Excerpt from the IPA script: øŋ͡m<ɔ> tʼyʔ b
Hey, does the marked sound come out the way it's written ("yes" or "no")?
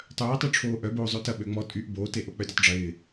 yes